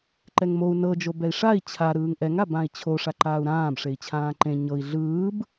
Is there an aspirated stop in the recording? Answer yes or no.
yes